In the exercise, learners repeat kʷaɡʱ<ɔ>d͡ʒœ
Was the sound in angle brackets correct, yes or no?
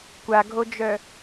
no